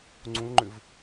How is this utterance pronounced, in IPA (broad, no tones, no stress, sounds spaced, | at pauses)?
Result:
ŋ͡ǀ ũ l ŋ͡ǃ ʏ v